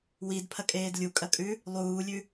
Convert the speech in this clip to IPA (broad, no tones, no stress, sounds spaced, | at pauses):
w i d pʰ ɐ kʼ eː d lʲ u kʼ ɐ kʼ ʉ | lˠ uː lʲ ʉ